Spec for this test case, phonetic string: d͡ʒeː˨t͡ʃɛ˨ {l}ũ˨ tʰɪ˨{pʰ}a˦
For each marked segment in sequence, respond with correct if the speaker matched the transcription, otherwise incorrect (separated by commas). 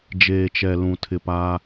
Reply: correct, incorrect